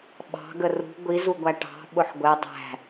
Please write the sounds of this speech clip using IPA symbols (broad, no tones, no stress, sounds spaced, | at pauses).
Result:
ɓ ɑ̤ ɡ ə r ṳ ɡʷ i z u ɡʷ æ ʈ ɑ̤ ɓ ʊ ħ ɡʷ ɛ dˤ æ̤